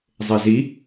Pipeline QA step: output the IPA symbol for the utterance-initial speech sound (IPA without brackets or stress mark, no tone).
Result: zˤ